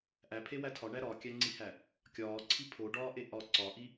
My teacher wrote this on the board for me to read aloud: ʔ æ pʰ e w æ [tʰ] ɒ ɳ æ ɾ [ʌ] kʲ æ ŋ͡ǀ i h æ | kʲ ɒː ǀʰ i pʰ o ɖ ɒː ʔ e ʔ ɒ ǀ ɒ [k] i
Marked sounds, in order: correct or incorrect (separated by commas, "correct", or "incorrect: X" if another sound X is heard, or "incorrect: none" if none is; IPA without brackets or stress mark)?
correct, incorrect: ɒ, incorrect: ʔ